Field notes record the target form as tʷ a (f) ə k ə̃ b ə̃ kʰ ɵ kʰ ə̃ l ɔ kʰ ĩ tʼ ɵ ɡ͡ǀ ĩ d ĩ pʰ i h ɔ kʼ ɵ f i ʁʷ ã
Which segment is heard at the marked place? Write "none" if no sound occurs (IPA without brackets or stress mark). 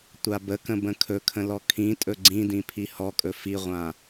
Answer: b